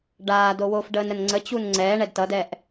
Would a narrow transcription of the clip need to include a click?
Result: yes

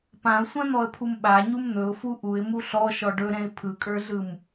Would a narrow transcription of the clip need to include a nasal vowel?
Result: yes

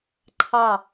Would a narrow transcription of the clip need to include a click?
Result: yes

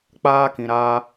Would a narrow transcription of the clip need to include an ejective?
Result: no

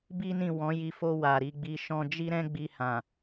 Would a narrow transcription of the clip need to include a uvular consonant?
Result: no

